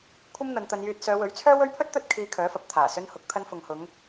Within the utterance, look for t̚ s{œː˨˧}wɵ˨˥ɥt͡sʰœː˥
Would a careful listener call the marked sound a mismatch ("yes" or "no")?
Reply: no